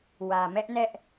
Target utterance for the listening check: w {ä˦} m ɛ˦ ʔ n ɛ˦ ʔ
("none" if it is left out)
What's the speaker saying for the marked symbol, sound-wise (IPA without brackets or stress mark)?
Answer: ä˨